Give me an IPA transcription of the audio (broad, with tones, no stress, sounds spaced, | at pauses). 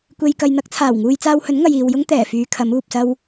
kʷ e˧ j k ɐ˧ j n̪ ɐ˥ k̚ t͡sʰ aː˨˩ w ŋ uː˧ j t͡s aː˧ w h ɵ˨˥ n ŋ ɐ˨ j iː˨ w j ʊ˥ ŋ t̪ ɛː˨˩ f yː˨˧ kʰ ɐ˨˥ m uː˨ p̚ s ɐ˥ w